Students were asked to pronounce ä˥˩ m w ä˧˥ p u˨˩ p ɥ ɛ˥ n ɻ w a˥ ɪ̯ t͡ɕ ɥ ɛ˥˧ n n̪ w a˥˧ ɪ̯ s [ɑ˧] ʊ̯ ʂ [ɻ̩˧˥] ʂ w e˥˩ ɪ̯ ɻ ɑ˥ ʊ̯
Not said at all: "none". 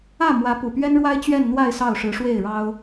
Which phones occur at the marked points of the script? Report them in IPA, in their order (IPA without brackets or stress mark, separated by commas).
ɑ˥˩, ɻ̩˧˥